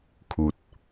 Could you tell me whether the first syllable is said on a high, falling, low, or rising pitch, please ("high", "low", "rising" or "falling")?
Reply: low